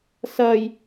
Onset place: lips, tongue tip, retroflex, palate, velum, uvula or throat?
tongue tip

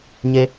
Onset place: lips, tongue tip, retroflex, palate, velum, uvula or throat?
palate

